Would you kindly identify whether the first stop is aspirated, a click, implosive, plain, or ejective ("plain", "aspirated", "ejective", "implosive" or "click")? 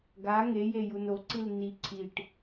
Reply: plain